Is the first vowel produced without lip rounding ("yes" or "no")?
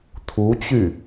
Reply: no